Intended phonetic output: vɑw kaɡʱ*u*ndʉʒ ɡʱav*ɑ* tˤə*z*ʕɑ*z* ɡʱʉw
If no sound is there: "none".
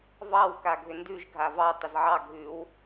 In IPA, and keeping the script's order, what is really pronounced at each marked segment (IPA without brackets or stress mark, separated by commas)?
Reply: ʏ, ɑ, z, none